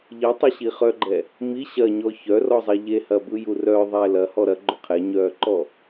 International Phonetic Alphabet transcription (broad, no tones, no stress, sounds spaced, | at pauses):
ʎ i tˤ ɐ ɕ i χ œ ɡ͡ǃ ɛ | m i ɕ ɐ ɲ ɔ ç œ r ɔ zˤ e ʎ e h ɐ b ɯ j u r œ ðˤ ɛ l ɐ h ɔ ɾ ɐ ɡ͡ǃ ʏ qʰ ɛ ɲ œː ǃ ɔ